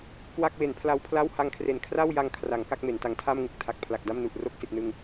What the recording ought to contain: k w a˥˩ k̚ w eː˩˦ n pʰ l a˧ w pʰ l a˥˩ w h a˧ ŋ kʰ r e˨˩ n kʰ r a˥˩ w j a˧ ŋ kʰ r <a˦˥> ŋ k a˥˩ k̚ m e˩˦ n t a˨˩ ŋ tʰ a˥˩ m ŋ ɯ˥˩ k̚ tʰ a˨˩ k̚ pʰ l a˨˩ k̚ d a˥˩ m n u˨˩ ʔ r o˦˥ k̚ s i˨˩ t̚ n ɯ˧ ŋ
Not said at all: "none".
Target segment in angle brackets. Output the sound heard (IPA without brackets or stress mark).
a˩˦